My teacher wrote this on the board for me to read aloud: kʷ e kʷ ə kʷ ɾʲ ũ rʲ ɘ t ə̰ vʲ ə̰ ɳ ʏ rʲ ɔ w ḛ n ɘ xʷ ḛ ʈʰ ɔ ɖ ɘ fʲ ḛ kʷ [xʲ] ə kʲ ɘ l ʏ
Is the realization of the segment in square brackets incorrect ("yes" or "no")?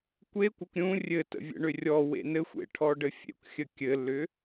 no